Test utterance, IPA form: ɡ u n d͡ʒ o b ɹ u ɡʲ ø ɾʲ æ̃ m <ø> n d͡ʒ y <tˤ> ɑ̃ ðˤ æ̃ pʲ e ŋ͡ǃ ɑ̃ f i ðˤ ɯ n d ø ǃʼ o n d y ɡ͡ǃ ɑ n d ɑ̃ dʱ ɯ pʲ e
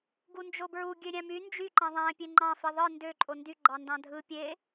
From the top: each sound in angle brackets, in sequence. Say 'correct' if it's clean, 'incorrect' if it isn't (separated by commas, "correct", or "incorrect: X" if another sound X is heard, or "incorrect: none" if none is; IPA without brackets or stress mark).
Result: incorrect: y, incorrect: ǃ